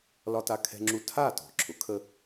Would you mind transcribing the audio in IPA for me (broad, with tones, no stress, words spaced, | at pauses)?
lɒ˧ta˧kʰɛ̤˧ŋ͡ǁu˧ tʰa˥˩tɔ̤˩ ǁʰʊ˩˥kʰə˧